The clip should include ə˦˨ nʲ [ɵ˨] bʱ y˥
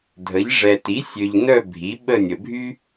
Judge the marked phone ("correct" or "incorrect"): incorrect